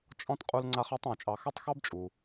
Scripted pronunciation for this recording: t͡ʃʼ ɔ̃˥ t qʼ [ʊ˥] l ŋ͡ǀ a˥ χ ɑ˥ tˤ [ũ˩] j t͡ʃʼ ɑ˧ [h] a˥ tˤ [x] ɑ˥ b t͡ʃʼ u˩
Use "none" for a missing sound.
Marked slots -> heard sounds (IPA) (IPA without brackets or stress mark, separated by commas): u˥, ũ˩, x, x